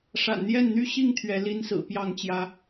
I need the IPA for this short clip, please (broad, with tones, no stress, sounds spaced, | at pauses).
ʂ a̰˨˩ n n̪ j ɛ˥˨ n n̪ y˦ ɕ i˥˨ ŋ t̪ʰ ɥ ɛ˨˦ l i˦ n s ɹ̩˨˩ p j ɑ˥˨ ŋ t͡ɕ j ä˨˦